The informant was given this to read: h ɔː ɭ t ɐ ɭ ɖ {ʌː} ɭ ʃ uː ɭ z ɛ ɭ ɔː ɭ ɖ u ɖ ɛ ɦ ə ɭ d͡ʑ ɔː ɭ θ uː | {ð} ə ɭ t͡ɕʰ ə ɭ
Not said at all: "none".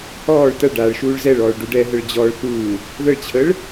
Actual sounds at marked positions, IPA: aː, ð

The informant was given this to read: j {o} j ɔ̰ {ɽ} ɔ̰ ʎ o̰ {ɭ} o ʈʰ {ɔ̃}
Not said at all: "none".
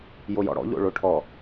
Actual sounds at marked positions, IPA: o, ɽ, ɭ, ɔ

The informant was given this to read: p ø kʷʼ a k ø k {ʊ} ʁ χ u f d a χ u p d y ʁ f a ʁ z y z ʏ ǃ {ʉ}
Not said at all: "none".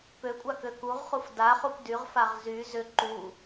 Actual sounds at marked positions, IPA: u, u

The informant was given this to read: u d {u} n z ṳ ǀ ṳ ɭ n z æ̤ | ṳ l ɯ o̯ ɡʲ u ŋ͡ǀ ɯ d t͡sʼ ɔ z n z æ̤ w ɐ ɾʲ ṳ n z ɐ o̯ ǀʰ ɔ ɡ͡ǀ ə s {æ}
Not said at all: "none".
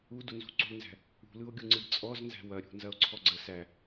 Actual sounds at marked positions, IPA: u, æ

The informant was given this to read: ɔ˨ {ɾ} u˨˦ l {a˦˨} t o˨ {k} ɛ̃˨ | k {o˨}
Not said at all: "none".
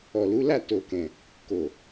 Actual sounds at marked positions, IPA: l, a˦˨, k, o˨

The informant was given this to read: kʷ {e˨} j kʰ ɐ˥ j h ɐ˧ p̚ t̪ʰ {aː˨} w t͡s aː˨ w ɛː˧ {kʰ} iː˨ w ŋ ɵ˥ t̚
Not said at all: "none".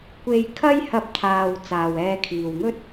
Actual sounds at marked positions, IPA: e˧, aː˨, kʰ

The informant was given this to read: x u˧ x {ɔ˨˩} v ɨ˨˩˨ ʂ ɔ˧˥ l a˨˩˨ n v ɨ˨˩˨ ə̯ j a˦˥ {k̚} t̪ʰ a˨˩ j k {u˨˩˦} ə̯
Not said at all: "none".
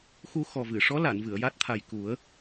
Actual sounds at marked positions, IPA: ɔ˨˩, t̚, u˨˩˦

